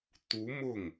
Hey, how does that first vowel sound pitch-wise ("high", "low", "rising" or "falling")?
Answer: rising